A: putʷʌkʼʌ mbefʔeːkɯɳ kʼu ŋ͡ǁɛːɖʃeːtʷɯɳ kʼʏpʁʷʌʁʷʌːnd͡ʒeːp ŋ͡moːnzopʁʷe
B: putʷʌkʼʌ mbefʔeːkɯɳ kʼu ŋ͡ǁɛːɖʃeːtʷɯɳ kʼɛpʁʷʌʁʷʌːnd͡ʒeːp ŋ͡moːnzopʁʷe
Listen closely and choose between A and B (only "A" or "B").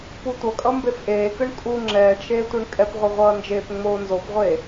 B